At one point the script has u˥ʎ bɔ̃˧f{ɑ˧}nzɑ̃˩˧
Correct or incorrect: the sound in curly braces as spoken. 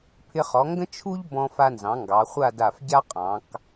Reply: incorrect: a˧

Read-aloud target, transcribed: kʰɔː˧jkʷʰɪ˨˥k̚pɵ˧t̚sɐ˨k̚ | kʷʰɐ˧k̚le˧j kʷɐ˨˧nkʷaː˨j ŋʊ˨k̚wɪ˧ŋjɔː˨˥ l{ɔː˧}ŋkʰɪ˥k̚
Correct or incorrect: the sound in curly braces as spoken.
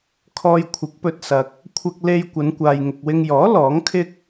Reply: incorrect: ɔː˨˥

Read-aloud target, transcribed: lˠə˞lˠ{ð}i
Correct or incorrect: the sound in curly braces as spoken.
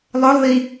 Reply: correct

